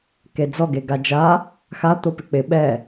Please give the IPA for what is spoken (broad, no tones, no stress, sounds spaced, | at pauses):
k e d͡z ɔ ɡ e ɡ a d͡ʒ a | x a t̪ o p ɪ k͡p ɪ ɓ ɛ